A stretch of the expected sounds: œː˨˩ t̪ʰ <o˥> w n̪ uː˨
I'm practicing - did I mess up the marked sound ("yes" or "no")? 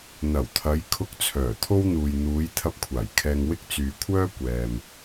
no